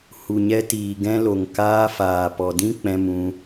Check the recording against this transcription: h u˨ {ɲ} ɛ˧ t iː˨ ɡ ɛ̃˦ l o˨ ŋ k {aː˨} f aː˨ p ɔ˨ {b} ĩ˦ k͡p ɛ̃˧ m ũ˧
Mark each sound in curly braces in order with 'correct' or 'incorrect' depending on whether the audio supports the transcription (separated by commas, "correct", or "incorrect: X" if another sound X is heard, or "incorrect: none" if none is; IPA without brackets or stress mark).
correct, incorrect: aː˧, incorrect: d